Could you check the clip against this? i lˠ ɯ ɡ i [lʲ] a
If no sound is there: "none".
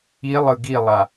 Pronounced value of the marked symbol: lˠ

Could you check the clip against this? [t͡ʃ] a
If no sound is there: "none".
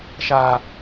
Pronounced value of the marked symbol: ʃ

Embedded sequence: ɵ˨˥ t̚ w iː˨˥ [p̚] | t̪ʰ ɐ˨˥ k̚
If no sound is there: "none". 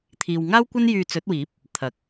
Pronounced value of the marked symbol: p̚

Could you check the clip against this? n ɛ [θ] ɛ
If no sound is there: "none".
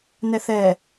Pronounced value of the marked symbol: θ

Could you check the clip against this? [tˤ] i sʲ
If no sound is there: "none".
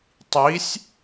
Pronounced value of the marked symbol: tˤ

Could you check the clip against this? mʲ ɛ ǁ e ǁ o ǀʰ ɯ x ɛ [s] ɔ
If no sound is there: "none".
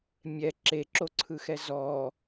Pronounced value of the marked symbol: z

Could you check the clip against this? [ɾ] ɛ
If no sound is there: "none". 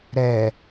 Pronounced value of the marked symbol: ɾ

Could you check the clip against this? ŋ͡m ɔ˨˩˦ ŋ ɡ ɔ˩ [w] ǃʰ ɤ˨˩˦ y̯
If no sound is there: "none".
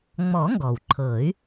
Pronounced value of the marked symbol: w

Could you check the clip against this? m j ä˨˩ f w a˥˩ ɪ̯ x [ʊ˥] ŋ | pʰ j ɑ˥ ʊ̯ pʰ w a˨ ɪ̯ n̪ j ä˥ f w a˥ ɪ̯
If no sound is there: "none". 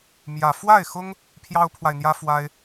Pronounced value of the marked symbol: ʊ˥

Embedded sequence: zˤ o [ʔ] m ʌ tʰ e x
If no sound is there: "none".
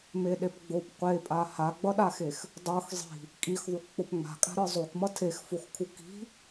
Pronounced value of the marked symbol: k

